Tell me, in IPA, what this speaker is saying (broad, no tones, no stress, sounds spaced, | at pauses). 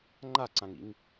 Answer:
ŋ͡ǃ a ǀ ã ŋ ḭ ŋ